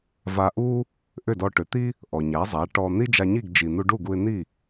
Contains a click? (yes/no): no